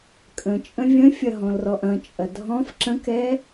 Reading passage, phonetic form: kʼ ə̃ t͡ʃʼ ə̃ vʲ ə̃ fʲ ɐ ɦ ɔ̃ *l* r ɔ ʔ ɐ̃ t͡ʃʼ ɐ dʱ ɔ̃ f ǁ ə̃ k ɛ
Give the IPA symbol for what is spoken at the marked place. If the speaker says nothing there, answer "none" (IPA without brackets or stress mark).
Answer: l